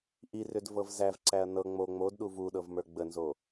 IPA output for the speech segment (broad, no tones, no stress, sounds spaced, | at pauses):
ʔ i r ʏ d v ɤ v z æ v ǀ æ ɐ̯ n ɤ ŋ͡m o ŋ͡m o d ɗ u v u ɗ ɤ v m ə˞ ɡ͡b ə n z o